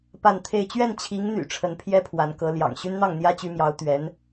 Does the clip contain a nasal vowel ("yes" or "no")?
no